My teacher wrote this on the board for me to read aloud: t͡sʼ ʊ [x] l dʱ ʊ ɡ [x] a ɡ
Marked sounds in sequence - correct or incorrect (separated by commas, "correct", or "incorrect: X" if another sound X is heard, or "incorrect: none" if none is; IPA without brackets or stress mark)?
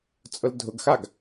incorrect: none, correct